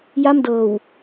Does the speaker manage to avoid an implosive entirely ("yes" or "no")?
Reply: yes